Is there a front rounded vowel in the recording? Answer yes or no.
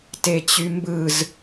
yes